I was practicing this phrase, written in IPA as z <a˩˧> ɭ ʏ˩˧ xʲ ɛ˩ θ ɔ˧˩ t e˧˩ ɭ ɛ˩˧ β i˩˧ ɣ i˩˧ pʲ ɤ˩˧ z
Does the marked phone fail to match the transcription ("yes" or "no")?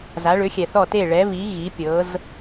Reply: no